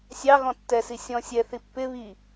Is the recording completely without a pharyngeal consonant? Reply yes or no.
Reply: yes